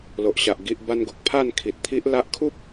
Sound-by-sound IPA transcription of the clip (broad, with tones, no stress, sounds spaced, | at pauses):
l o˨ ʔ ɕ a˨ ʔ ɡ i˨ ʔ b a˧ n ɡ o˨ k̚ pʰ a˥˧ n kʰ i˨ t̚ t̪ʰ i˦ ʔ l a˦ ʔ kʰ u˦ p̚